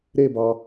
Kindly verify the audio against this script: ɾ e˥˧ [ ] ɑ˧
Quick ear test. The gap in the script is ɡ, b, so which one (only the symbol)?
b